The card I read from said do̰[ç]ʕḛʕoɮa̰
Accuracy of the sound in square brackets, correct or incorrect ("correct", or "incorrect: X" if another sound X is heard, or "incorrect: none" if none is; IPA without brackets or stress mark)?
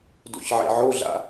correct